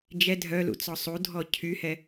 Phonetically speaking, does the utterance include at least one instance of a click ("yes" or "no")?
no